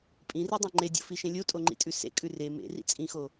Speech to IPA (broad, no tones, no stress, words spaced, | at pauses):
pʼĩridˤã ŋ͡ǃedʲo̰fiʃẽ lʲotʼoŋ͡ǃḭtʼʉ sḛkʼʉ re mḛrḭ t͡sʼĩxo